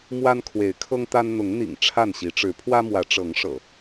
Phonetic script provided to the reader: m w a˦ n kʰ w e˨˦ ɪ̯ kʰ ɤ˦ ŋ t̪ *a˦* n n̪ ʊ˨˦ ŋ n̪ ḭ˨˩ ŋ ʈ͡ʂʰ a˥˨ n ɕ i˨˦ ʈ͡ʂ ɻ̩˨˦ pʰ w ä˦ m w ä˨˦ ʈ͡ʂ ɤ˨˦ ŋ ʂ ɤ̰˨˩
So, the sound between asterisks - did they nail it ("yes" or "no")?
yes